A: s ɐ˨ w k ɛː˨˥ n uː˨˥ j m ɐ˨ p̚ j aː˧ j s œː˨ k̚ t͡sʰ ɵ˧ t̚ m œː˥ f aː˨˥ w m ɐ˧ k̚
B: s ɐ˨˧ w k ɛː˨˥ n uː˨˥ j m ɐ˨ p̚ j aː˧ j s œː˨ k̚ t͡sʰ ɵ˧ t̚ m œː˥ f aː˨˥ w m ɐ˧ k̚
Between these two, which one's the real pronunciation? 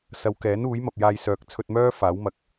B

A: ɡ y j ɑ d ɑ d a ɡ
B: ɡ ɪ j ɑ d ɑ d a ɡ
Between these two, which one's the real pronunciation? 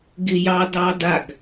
B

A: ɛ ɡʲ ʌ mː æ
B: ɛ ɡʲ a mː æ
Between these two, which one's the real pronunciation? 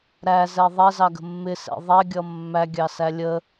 A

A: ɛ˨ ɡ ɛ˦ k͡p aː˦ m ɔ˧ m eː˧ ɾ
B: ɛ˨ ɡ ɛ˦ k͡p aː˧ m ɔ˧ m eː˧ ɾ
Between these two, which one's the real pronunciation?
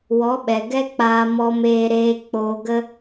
B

